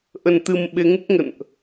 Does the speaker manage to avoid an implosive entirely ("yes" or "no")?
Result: no